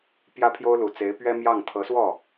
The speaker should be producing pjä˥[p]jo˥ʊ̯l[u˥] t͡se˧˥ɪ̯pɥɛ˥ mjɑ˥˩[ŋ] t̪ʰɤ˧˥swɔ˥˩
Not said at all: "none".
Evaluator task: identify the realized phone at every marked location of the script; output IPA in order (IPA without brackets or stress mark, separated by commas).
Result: pʰ, u˨˩, ŋ